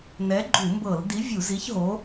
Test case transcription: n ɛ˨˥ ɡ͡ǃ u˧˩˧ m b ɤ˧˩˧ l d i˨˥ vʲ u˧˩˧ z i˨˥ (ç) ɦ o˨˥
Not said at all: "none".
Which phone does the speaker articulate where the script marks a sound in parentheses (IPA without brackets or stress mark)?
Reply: ç